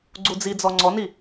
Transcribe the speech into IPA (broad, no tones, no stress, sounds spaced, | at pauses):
ɡ͡ǀ u d͡z i d͡z ɔ ŋ͡ǀ ɔ n i